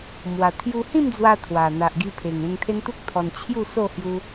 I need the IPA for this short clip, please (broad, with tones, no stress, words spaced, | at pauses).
mwa˨˩ t̪ʰju˧hĩ˥˧md͡zwa˧ t̪ʰwa˨˩ n̪a˨ʔɡi˧ pʰe˨˩ŋẽ˧ŋt̪ʰe˦nt̪u˦k̚ t̪ʰɔ˧nt͡ɕʰju˥˧so˥˧ hju˧